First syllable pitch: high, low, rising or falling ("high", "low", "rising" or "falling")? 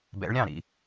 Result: rising